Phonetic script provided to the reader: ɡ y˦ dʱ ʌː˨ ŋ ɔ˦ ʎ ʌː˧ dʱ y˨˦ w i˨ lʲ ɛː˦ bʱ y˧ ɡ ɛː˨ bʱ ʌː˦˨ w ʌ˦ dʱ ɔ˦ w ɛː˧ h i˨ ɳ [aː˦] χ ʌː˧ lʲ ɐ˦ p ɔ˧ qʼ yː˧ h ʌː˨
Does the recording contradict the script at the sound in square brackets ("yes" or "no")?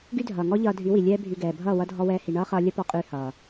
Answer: yes